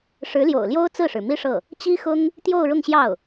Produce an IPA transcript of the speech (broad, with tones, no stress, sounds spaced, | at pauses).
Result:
ʂ ɻ̩˧˥ l j o̰˨˩ ʊ̯ l j o˥ ʊ̯ t͡s ɹ̩˥˩ ʂ ɻ̩˩ m i˥ ʂ ɤ˥˩ | t͡ɕ i˥ x ʊ˥ ŋ | t̪ j o˥˧ ʊ̯ ɻ ʊ˥˧ ŋ ɕ j ɑ˥˩ ʊ̯